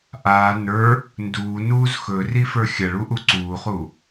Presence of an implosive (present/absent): absent